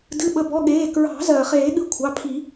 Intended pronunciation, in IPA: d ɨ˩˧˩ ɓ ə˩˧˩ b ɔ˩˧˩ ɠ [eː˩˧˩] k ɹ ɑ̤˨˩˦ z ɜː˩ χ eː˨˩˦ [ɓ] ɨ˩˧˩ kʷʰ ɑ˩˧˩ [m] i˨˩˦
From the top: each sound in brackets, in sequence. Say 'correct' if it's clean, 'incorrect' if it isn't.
correct, incorrect, incorrect

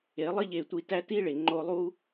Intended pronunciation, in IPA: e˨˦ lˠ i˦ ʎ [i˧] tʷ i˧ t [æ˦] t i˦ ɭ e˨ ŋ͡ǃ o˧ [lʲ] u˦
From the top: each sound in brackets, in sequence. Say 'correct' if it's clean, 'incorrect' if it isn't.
incorrect, correct, incorrect

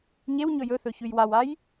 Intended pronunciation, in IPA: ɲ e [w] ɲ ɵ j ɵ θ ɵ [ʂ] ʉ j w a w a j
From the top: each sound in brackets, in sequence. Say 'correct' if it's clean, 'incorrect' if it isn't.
correct, incorrect

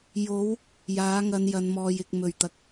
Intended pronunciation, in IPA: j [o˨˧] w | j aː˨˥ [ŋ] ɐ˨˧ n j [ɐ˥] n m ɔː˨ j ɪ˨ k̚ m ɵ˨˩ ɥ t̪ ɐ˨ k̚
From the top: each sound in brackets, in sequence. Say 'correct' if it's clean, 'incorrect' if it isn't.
correct, correct, incorrect

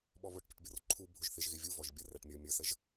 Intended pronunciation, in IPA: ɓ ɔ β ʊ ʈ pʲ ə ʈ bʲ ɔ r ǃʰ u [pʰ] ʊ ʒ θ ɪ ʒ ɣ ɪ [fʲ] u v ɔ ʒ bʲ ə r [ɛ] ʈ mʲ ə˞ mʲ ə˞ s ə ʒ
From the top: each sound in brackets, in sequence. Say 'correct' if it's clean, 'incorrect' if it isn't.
incorrect, incorrect, incorrect

